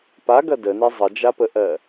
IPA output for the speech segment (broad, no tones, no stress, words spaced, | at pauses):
paɡɐ dəne zˤəd͡ʒapəʔɜ